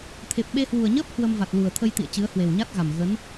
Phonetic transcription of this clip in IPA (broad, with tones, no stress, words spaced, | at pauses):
t̪ʰe˨˩p̚ ɓe˧ hwu˨˩ə̯ɲəː˦˥p̚ hwə˧mva˨˩t̚lu˨˩ə̯ t̪ʰə˧jt̪ḭ˧˨ə̯ t͡ɕɨ˨˦ə̯hwe˨˩wɲa˦˥t̚ɣa˨˩m ɣə˨˦n